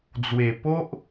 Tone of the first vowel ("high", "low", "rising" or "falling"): low